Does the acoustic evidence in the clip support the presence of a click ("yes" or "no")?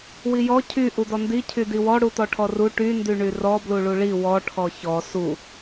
no